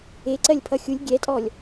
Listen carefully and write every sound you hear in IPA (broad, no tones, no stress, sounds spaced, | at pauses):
e ǀ ɜ lʲ pʰ ʌ xʲ u lʲ ɡʲ ɛ tʼ ɔ lʲ